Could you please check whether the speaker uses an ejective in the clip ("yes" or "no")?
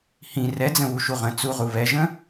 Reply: no